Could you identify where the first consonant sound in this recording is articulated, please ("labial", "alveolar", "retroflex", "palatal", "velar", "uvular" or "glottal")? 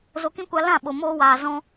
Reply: alveolar